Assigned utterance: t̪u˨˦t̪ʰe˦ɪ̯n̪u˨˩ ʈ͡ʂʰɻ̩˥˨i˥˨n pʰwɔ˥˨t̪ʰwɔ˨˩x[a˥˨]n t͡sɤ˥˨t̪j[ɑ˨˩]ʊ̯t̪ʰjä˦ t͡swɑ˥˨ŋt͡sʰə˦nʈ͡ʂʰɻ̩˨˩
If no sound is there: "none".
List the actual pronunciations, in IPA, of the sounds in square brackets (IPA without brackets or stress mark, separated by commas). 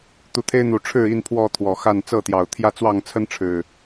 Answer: a˥˨, ɑ˨˩